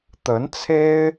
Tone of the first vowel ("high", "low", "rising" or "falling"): rising